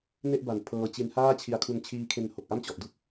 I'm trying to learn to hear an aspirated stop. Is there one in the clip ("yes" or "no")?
yes